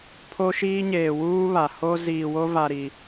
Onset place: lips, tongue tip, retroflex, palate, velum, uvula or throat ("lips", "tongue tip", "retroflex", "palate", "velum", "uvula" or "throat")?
lips